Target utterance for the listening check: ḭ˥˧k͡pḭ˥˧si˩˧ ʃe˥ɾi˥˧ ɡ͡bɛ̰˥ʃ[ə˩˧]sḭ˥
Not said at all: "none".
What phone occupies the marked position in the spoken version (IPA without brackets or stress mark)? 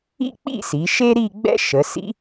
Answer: ə˩˧